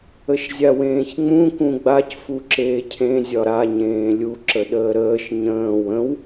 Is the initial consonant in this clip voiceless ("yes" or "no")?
yes